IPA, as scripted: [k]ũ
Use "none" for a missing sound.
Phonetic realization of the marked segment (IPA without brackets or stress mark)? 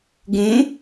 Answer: ɡ